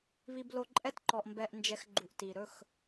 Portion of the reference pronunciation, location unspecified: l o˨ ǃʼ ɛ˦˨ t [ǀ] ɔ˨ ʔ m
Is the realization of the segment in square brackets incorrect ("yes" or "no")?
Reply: yes